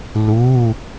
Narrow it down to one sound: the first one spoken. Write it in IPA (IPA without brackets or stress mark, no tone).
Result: l